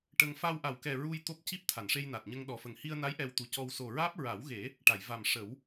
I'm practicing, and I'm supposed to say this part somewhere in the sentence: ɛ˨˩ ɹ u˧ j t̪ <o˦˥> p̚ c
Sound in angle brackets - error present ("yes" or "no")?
no